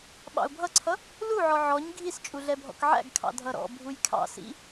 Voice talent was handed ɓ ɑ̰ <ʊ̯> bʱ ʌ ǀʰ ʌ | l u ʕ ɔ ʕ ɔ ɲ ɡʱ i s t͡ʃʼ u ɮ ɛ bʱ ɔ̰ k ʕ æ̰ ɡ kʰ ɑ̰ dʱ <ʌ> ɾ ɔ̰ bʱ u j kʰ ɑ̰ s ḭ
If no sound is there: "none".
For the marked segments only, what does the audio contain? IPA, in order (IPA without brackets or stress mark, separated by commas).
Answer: ʊ̯, ʌ